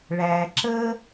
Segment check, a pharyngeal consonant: absent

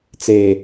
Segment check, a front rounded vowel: absent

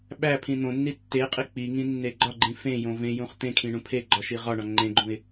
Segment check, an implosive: present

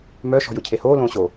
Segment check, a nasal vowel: present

